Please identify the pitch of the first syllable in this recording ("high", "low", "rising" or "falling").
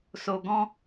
low